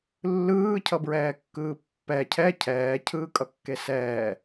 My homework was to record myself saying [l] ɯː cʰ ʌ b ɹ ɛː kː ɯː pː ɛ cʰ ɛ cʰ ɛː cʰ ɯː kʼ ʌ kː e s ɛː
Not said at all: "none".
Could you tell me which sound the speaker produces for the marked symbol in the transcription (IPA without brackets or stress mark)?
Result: lː